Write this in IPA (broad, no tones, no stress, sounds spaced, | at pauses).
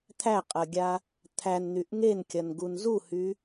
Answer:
t̪ʰ æ qʼ ɐ ɡʲ a | t̪ʰ æ n n̪ y ʔ ŋ e n kʲ ɐ n ɡ u n z u h y